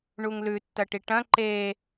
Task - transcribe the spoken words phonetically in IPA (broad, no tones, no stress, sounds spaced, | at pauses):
ɳ u ŋ l ʉ tː ɐ ʈ i ʈ ɐ̃ ǃ e